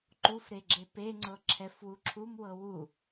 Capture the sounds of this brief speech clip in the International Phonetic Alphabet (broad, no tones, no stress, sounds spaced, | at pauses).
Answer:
ǃ u f ɾ e ɡ͡ǁ e p e ŋ͡ǀ ɤ ǁʰ ɛ f w u ǁʰ u m w ɤ w u